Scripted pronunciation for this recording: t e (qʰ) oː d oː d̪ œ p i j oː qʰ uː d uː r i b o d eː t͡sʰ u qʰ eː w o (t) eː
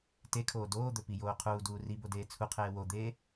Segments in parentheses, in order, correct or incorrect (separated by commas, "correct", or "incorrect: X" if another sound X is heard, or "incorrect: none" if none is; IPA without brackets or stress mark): incorrect: kʰ, incorrect: d̪